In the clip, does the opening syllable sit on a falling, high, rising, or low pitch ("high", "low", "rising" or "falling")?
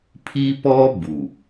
high